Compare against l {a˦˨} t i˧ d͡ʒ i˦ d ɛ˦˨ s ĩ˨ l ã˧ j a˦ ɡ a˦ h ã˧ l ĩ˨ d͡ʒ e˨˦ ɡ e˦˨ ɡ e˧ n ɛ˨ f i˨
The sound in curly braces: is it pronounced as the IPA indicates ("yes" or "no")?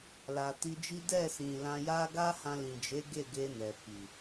no